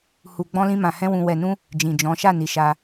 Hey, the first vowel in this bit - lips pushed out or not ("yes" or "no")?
yes